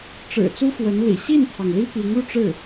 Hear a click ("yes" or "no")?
no